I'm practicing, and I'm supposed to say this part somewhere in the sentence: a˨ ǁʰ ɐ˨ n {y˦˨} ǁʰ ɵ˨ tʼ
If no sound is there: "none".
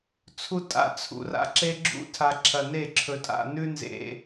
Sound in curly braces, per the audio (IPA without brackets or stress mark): e˦˨